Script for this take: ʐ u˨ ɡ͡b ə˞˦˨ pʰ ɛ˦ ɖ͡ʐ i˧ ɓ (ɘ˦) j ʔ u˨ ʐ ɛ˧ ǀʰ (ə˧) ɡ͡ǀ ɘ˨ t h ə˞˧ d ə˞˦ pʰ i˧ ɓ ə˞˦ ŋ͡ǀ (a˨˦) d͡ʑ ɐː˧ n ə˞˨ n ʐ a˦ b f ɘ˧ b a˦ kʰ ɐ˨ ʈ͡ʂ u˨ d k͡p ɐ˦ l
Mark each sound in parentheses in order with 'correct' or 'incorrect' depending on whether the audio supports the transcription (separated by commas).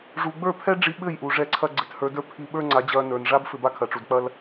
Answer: incorrect, incorrect, correct